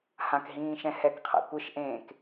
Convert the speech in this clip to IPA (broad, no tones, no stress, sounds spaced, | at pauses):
h ã k ɦ ĩː ʃ ɛ̃ h ɛ k qʰ a̰ kʷ ɯ ʃ ʔ ẽː k